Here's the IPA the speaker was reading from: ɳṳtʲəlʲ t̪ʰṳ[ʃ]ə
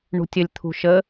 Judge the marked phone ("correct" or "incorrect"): correct